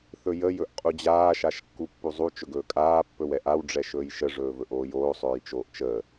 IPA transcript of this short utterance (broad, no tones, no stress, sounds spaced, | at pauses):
θ ɵ j ə j ɵ ʔ qʼ u d͡ʑ aː ʃ a ʃ kː u pː u zˤ u t͡ʃ ɵ ɡ ɵː kʼ aː pː ɵ w ɛ ʔ a w ɖ͡ʐ ɛ ʃ ɵː j ʃ ə ʐ ɵː v ɵ ʔ oː j oː sˤ ɵː j t͡ʃ oː ʔ t͡ʃ əː